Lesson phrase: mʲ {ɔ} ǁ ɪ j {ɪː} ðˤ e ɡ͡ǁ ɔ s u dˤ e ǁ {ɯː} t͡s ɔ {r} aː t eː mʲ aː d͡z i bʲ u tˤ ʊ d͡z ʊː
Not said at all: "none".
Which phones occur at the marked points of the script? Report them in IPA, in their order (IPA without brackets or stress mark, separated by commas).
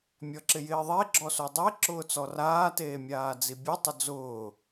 ɔ, ɪː, ʊː, r